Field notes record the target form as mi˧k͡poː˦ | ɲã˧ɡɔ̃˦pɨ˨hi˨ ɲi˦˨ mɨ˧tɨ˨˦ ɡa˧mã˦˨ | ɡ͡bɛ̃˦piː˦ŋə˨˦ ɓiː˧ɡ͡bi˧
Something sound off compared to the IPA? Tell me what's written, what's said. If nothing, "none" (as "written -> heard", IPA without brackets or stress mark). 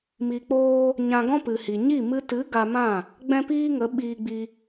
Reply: none